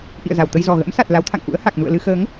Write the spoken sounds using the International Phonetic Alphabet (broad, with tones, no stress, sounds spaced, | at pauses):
ʔ ḭ˧˨ ə̯ z a˧˩ w t̪ ə˧ j z ɔ˨˩ ɣ ə̰˧˥ m s a˨˩ t̚ l a˨˦ w t̪ʰ a̰˧˨ ŋ ʔ ṵ˧˥ ə̯ h a˨˩ k̚ n ṵ˧˨ ə̯ l ɨ˧ x əː˨˦ ŋ